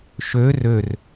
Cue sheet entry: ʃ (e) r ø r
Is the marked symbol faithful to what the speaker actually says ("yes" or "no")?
no